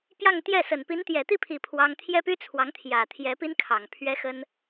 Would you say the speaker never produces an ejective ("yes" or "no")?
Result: yes